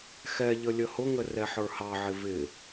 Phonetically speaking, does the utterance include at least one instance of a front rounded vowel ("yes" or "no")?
no